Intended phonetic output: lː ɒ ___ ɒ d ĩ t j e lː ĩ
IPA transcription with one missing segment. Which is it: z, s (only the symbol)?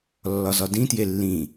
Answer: z